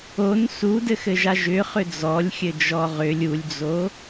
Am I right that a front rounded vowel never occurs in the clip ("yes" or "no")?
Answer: no